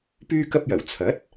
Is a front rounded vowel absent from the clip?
no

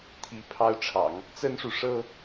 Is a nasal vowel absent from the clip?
yes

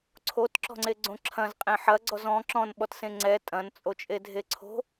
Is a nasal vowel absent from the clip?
no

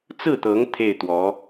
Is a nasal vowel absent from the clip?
yes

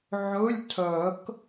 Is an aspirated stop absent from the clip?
no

